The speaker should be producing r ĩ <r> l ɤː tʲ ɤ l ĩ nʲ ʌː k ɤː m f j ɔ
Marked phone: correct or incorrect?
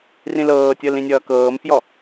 incorrect